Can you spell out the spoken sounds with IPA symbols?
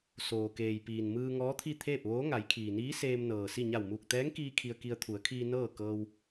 s oː˩ k eː˩ j p iː˩ n m ɯː˧ ŋ ɔː˧˥ t̪ʰ i˥˨ t̪ʰ eː˥˨ p̚ ʋ oː˧˥ ŋ a˩˧ j kʰ iː˩ n iː˧˥ s eː˧ m n ɤː˩ s i˥˨ ɲ a˧˩ w m uː˧˩ k̚ t̪ ɛː˧˥ ŋ k iː˧ kʰ i˧ ə̯ k i˧ ə̯ t̪ʰ u˩˧ ə̯ kʰ iː˧ n ɤː˥˨ k ɤː˧ w

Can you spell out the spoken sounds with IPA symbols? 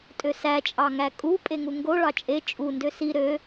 tʼ ø s æ t͡ʃʼ ɑ ŋ æ kʼ u pʼ e ŋ u ŋ ɡ o ɭ ɑ t͡ʃʼ e t͡ʃʼ u n d ø s i ɾ ø

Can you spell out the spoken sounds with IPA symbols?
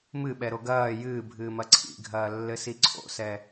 m ɨ ɓ ɛ ɾ o ɡ ɐː j ɨː bʱ ɨː m ɐ ǀʰ ḭ ɡʱ ɐː lː ɘ s i ǀʰ o̰ s ɛ

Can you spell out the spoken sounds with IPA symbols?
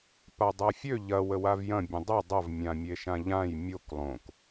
p a dˤ a fʲ ø ʎ ɐ w ə w a v j ɐ̃ bʲ ə̃ dˤ ɐ dˤ ɐ v mʲ ã mʲ e ʃ ã ʎ ã j mʲ o k lˠ õ k

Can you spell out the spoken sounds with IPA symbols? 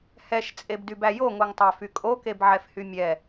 h ɛ ʃ t͡sʼ e b d y b æ j o ŋ o ŋ tˤ æ f y kʼ o k e b ʕ ɛ f h y mʲ ɛ

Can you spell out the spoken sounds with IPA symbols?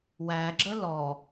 w æ ɡ͡ǁ ə l ɔ

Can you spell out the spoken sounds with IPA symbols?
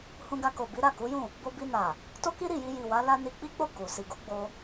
h ũ˧ ɡ a˧ k o˨ b i˨˦ ɾ a˦˨ k u˨˦ j ũ˦˨ | b o˧ b i˧ n a˨ | t o˦ k i˦ ɾ i˦˨ j i˧ j i˨ w a˨˦ l a˧ n i˧ k͡p i˦ k͡p o˦˨ k u˨ s i˨ ɡ u˨˦ ɡ͡b o˧

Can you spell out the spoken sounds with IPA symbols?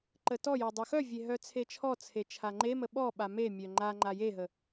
ǃ ə t ɔ j ɔ dˤ œ x œ vʲ e ɦ œ t͡sʰ e t͡ʃʰ ɔ t͡sʰ e t͡ʃʰ a ŋ͡ǃ e m ə ɓ ɔ ɓ a m e mʲ œ ŋ͡ǃ a ŋ͡ǃ a j e ɦ ə

